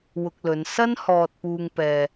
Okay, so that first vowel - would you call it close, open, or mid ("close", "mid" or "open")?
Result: close